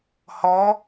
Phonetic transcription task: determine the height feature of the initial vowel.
mid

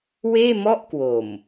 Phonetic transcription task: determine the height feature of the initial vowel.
mid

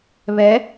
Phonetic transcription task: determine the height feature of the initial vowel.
mid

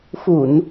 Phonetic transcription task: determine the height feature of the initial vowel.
high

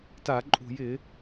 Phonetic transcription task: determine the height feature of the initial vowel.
low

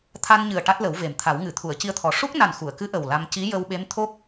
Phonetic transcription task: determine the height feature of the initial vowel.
low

